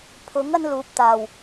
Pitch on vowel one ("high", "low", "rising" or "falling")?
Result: rising